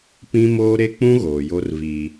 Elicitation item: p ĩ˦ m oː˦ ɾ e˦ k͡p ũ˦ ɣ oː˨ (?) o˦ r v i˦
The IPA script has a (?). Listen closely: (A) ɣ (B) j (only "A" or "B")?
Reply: B